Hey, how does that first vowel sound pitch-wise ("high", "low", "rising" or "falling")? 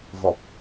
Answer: low